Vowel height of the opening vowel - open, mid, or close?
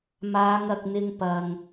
open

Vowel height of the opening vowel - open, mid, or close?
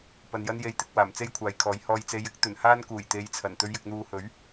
open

